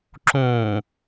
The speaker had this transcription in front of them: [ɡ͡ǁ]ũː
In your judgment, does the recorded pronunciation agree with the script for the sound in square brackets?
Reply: no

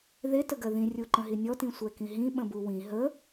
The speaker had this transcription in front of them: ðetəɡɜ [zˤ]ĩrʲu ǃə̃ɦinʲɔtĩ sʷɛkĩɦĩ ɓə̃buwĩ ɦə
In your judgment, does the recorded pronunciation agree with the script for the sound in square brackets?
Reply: no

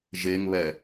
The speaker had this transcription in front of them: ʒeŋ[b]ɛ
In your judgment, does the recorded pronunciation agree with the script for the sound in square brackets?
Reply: no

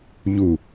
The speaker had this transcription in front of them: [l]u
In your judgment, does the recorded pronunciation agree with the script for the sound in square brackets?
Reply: no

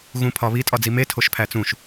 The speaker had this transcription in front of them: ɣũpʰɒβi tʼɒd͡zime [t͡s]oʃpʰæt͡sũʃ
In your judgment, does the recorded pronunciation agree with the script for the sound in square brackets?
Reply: no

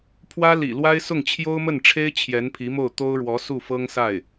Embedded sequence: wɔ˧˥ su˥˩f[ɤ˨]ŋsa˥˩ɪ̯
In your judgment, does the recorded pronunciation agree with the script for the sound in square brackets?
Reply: no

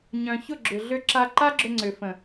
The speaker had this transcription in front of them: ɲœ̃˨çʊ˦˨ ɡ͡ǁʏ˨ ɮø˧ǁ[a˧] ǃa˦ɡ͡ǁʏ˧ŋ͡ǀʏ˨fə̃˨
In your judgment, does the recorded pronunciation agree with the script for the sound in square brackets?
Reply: yes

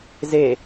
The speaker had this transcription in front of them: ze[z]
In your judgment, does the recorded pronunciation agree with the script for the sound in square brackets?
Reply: no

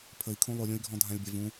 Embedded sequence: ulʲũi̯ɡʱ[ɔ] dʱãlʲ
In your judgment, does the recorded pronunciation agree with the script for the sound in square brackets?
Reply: no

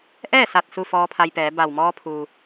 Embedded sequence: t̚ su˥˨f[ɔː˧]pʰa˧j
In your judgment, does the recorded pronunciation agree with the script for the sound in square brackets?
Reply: yes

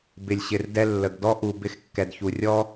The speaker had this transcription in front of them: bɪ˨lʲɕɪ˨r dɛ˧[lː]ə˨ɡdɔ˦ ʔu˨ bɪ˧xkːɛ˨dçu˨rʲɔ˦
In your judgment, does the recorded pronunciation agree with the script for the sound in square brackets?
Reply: yes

